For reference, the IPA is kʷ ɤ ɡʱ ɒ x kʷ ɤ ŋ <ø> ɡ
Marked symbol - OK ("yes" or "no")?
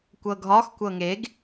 no